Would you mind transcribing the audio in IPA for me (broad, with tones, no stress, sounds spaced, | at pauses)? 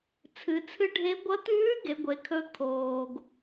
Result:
t͡sʰ ɨ˩˧ t͡sʰ ɨ˧˥ ɖʱ e˧˥ ɡʷ ɐ˧˥ t̪ ʉː˧˥ ɡ e˩˧ ɡʷ e˩˧ kʰ ɵ˧ kʰ oː˩ ɡ